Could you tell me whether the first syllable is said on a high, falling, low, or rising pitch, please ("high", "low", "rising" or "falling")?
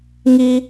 high